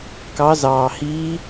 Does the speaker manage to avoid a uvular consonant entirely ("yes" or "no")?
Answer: yes